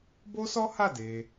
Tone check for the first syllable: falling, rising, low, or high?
high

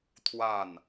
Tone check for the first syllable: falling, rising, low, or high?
falling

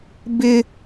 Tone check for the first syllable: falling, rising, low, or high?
high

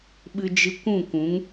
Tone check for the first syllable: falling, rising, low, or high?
high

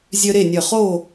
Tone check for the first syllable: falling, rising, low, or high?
high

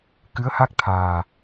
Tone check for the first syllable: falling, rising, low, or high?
rising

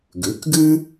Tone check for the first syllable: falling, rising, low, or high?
rising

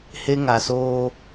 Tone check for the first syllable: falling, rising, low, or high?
high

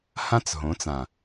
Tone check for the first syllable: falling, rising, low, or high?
high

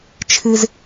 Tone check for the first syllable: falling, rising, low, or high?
high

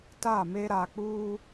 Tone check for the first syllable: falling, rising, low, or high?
falling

